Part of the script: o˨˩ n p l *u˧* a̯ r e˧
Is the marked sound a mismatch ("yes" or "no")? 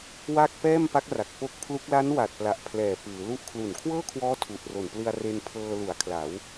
yes